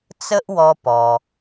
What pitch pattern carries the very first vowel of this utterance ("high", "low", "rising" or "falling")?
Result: high